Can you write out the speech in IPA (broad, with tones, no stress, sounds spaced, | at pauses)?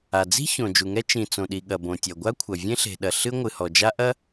a˩ d͡z i̤˥ ç õ˩ d͡ʒ u˩ ŋ ɛ˥ t͡ʃ ĩ˩ t͡s õ˩ ɗ i˩ ɠ ɐ˩ b õ˩ tʲ ɐ˩ ɡʷ a˥ kʷʰ ɐ˩ vʲ ẽ˥ ɬ e̤˩ ɗ ɐ˩ ɬ ɨ˥ ŋʷ ɨ˩ h ɔ˩ d͡ʒ a˥ ʔ ɐ˥